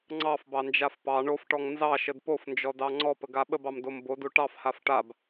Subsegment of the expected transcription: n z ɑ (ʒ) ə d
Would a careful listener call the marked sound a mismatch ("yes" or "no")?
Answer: yes